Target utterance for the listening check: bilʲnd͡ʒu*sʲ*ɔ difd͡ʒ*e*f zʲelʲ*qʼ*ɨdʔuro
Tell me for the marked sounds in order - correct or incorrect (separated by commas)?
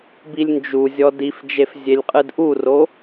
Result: incorrect, correct, correct